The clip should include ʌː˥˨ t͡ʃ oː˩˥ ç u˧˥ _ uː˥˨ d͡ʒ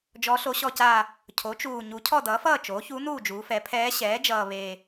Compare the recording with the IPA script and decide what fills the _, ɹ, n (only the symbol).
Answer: n